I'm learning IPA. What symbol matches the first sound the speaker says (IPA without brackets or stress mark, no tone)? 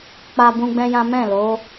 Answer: k͡p